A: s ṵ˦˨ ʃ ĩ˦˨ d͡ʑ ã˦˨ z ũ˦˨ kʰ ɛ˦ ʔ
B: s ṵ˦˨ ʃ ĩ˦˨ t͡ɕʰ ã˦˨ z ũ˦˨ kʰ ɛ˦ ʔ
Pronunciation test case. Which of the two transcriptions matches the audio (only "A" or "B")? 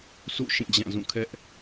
A